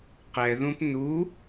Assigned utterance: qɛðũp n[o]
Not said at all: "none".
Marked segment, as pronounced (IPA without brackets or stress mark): u